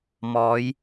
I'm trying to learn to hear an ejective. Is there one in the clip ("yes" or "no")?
no